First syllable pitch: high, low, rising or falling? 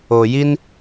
low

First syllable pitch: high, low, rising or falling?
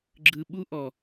low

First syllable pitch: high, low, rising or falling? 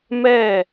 falling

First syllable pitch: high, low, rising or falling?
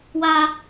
low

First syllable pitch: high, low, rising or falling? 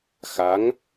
rising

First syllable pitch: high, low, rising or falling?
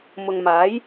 low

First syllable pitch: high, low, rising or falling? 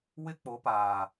high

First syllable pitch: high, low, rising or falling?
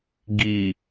low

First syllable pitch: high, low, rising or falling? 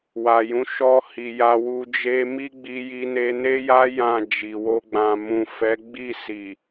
low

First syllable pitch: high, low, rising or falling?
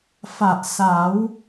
low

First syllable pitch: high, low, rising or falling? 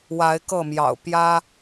rising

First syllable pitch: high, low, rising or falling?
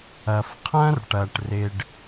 low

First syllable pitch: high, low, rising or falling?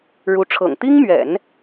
rising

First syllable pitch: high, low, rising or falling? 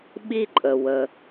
high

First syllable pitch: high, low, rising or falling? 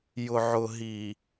low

